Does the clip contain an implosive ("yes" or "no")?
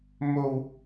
no